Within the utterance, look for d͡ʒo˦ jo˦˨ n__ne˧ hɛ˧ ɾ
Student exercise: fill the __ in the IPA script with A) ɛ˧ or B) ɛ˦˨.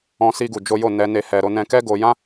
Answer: A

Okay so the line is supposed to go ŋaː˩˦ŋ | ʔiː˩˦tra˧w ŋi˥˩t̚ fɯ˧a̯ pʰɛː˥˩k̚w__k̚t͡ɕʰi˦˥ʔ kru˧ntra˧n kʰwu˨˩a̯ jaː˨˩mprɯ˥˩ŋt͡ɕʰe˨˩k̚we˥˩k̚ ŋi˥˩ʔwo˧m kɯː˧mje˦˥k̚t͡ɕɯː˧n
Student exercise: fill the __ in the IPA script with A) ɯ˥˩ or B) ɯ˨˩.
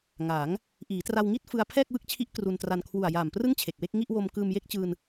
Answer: A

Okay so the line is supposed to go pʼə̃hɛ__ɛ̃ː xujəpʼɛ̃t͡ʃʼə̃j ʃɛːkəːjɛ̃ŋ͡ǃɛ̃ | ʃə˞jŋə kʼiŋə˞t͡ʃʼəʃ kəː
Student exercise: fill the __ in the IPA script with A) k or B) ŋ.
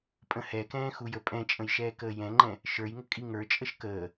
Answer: A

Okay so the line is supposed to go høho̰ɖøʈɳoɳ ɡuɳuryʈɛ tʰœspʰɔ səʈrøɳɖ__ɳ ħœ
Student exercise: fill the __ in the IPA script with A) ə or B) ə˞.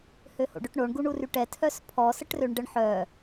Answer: A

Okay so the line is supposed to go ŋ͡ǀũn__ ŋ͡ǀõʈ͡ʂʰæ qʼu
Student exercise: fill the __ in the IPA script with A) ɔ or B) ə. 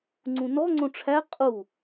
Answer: A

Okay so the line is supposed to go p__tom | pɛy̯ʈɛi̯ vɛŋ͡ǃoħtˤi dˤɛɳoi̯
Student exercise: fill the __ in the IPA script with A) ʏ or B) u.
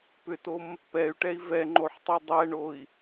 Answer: A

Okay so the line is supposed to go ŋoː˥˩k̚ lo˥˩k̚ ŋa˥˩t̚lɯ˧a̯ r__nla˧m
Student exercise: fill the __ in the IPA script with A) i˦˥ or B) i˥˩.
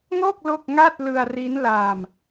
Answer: A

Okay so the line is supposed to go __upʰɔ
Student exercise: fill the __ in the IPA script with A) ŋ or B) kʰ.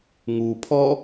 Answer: A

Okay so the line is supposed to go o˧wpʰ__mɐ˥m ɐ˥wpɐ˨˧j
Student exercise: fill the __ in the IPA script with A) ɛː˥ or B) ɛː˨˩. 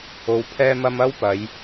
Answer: A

